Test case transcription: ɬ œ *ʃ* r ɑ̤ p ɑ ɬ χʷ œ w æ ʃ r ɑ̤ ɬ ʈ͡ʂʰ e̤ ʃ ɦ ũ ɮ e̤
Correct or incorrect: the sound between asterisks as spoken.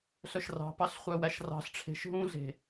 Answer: correct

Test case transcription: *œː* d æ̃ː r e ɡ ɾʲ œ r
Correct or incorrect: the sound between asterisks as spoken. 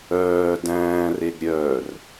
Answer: correct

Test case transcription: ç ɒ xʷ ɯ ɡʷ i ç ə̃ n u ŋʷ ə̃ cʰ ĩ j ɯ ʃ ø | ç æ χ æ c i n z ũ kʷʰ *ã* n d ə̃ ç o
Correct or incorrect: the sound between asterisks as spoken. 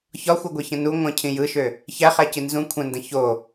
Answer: incorrect: ə̃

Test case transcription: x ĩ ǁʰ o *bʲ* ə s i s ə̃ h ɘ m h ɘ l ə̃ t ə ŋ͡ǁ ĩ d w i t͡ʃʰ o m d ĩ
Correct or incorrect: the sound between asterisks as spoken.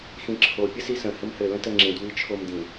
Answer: incorrect: pʲ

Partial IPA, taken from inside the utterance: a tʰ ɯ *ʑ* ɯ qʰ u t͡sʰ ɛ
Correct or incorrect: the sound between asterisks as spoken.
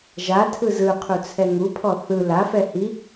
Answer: incorrect: z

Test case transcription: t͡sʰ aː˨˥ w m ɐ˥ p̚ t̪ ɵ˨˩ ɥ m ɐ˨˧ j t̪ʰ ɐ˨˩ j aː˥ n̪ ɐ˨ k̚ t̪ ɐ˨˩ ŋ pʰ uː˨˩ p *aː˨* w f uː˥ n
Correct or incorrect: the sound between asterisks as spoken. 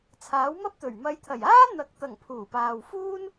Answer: correct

